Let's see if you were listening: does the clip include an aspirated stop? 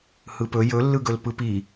no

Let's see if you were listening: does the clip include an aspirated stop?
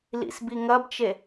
no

